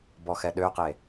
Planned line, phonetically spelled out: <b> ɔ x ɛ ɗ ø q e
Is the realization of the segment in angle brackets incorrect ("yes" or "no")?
no